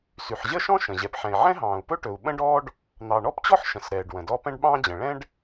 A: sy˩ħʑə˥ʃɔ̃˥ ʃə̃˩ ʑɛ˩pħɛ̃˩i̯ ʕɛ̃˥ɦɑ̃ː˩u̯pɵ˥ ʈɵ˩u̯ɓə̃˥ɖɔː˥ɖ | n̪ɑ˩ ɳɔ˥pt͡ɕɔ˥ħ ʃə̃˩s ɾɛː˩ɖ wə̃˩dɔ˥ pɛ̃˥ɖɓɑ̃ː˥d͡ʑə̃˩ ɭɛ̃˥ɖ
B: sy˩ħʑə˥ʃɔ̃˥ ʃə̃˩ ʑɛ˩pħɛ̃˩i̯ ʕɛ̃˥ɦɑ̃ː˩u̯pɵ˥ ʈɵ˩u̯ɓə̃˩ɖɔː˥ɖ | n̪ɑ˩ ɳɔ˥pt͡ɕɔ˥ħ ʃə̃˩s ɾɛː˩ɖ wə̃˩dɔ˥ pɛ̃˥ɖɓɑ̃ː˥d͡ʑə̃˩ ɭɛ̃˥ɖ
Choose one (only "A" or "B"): A